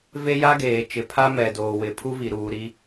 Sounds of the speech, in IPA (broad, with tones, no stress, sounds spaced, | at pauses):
v e˦ j a˦ ɡ eː˨ t͡ʃ ɪ˨ pʰ a˦ m ɛ˨ d oː˨ w ɪ˨ pʰ u˦ v i˨ ɾ uː˨ ɾ i˦